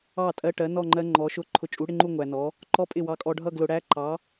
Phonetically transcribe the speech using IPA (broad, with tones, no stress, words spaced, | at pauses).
ɑ˥˩tʼɜ˧˥˧ʈɜ˨˥nɔ˥˧ ŋ͡ǃɜ˦˥ŋ͡ǃɔ˨˥ʃʊ˥˧ ǃʰʊ˧t͡ʃʼu˨˥ɽɪ˧˥˧ŋ͡ǃu˥˧ ŋʷæ˧nɔ˨˥ | ǃɔ˦˥pʼɪ˥˩ wɑ˧kʼɔ˧ɖʱʌ˥˧ ɡlʊ˧ɽæ˦˥ ǃɑ˨˥